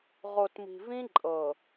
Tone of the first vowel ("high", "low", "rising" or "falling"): low